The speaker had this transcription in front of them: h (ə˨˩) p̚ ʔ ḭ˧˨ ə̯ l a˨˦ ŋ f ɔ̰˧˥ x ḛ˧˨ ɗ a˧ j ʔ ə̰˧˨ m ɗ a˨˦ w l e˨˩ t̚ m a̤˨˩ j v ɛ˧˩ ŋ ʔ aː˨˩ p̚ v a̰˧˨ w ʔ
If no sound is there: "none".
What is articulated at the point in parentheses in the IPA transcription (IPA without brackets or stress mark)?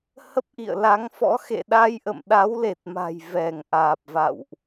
ə˦˥